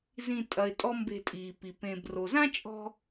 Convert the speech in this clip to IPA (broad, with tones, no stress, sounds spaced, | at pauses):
z ĩ˧ tʼ ɐ˨ ɪ̯ tʼ ɔ˦ m b e̤˧ tʼ iː˨ p i˨ p ẽ˨ b r o˨ z ã˦ t͡ʃʼ ɔ̤˧